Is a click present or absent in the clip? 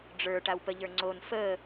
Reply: present